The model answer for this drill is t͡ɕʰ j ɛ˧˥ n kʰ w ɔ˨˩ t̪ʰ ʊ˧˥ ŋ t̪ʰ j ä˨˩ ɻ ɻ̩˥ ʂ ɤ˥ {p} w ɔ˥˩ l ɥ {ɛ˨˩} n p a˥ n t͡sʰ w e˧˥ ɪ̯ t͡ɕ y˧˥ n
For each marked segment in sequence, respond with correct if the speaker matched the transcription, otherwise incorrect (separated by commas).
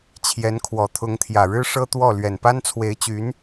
incorrect, correct